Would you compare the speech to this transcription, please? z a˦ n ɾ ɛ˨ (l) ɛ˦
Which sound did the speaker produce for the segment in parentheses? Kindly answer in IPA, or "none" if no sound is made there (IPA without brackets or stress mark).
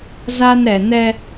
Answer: n